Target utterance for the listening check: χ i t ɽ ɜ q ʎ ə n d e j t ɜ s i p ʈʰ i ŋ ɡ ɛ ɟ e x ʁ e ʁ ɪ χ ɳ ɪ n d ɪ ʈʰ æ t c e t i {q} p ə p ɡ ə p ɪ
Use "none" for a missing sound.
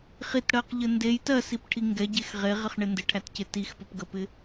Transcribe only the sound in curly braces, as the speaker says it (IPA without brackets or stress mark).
x